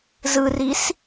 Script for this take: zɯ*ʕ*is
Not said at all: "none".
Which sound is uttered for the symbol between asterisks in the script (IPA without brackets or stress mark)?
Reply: r